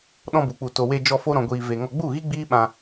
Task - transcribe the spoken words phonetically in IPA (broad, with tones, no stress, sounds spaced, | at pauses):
ɗ ɔ̃˧ b u˨ k͡p u˧ t o˧ w e˧ d͡ʒ ɔ˧ f o˦ ɾ ɔ̃˧ ɡʷ iː˧ v e˧ ŋ ɔ˧ ɡ͡b u˦˨ ɣ i˦ ɡ͡b iː˦ ɓ ã˧